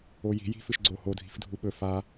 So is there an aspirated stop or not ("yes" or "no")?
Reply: no